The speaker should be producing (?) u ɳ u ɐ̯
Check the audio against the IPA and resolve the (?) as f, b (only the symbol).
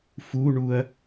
f